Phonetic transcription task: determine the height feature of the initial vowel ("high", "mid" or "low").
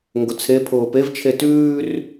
high